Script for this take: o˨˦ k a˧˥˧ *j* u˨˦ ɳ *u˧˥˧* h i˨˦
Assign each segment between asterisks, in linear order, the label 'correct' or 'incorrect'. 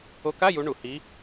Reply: correct, incorrect: u˧˩˧

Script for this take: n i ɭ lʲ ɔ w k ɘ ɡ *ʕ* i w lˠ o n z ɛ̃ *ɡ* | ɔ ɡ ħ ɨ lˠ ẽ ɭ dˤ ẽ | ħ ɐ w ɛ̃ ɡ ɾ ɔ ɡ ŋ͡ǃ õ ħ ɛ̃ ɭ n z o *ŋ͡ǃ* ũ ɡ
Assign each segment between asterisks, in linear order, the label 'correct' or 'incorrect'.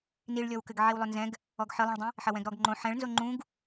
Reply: correct, correct, correct

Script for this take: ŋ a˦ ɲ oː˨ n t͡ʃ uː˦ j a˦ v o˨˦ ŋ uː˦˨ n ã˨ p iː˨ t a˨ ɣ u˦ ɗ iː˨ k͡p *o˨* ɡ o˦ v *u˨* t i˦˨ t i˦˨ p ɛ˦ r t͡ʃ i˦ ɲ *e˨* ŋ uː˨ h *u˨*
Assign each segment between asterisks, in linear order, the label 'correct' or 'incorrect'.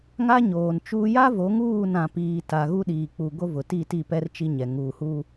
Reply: incorrect: u˨, incorrect: ʊ˨, incorrect: ɛ˨, incorrect: u˦

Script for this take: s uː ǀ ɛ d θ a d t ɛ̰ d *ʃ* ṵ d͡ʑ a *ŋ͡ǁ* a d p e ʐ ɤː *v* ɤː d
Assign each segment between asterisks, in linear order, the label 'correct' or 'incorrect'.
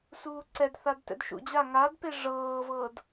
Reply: correct, incorrect: ŋ, correct

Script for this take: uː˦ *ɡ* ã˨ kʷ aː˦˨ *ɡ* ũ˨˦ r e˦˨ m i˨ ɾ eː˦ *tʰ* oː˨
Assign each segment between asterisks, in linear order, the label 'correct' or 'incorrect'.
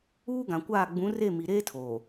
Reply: correct, incorrect: ɡ͡b, correct

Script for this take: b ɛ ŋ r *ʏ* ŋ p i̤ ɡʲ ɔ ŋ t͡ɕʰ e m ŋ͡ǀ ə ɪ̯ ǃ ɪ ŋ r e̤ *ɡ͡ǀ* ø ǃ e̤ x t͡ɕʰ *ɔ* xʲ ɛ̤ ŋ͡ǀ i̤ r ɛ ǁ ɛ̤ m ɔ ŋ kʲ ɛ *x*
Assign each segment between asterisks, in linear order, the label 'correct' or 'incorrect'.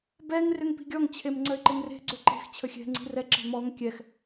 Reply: correct, correct, incorrect: ə, correct

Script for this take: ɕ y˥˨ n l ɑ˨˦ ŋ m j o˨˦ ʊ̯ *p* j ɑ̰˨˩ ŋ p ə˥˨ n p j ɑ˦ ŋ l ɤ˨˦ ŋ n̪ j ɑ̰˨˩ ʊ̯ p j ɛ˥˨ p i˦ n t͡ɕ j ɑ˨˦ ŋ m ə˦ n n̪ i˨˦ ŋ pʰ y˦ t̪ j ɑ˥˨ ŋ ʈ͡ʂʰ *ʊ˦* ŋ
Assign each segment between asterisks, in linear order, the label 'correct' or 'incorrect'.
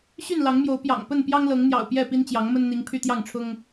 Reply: correct, correct

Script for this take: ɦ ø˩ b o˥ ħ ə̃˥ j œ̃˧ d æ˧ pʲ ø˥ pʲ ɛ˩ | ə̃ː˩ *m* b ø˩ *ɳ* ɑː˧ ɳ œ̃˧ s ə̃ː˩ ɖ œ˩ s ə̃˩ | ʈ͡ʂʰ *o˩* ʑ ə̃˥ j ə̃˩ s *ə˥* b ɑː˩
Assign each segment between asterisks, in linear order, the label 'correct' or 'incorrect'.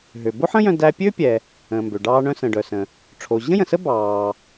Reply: correct, incorrect: ɖ, correct, correct

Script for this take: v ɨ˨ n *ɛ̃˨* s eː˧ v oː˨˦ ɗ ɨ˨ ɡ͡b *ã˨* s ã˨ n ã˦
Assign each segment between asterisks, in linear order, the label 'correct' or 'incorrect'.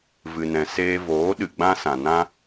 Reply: correct, incorrect: ã˦

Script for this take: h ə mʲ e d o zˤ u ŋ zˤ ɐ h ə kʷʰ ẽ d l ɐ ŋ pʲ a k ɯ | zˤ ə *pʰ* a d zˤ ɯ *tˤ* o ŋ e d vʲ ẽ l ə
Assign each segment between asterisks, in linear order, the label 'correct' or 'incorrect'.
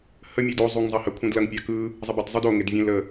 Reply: incorrect: b, incorrect: d

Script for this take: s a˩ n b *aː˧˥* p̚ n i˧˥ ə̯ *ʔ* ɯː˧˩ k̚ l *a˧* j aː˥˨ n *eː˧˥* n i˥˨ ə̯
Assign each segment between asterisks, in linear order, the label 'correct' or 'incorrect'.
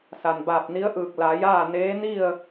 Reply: incorrect: aː˧˩, correct, incorrect: a˩˧, correct

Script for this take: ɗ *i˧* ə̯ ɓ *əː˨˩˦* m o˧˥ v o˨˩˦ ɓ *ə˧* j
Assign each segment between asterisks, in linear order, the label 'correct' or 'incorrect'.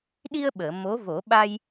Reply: correct, incorrect: əː˨˩˨, incorrect: a˧

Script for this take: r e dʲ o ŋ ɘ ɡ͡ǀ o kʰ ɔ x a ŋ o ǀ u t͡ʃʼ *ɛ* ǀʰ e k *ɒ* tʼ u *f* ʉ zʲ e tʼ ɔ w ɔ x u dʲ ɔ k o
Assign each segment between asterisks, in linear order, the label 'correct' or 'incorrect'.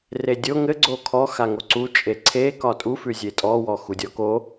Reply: incorrect: e, correct, correct

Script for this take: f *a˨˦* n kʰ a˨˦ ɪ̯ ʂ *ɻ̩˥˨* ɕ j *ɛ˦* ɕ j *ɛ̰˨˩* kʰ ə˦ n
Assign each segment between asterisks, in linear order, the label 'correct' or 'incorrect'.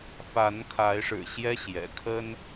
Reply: correct, incorrect: ɻ̩˨˩, correct, correct

